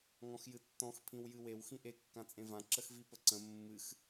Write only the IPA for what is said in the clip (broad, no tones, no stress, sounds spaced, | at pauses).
ŋ ɔ̃ x j ɨ tː ɔ̃ x pʰ ĩ w j ɨ w e w x ĩ ʔ e kː ã t͡sʼ ẽ v ã ǁ ə x v i p ə ǀ ə̃ mː ɨ x